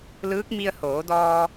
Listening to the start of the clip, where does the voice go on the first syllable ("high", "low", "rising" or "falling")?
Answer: rising